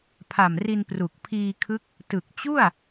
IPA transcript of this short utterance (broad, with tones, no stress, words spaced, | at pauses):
pʰa˨˩m ri˧n pru˨˩k̚ pʰiː˧kʰɯ˦˥k̚ | tɯ˨˩k̚ t͡ɕu˥˩a̯